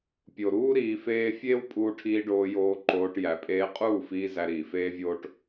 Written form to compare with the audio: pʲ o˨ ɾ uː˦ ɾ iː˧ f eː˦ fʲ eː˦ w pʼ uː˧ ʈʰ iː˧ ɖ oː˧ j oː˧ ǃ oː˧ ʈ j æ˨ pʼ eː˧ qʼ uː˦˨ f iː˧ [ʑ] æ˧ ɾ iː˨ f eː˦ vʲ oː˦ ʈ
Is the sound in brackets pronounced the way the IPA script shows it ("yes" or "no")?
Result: no